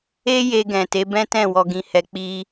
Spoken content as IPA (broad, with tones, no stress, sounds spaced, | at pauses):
e˦ j e˧ ɡ ɛ̃˨ t e˨˦ b ɛ̃˦ t ɛ̃˦˨ w ɔ˧ ɡ ĩ˧ h ɛ˧ k͡p i˧